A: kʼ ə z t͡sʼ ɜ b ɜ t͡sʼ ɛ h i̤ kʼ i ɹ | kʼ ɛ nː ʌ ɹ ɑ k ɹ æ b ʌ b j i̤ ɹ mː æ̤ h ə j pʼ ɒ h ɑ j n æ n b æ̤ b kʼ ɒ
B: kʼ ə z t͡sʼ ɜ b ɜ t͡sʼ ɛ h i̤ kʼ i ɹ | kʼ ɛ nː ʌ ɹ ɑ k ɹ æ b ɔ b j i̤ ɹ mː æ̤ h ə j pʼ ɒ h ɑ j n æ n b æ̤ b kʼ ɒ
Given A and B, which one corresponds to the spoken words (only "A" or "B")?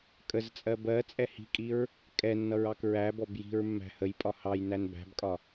B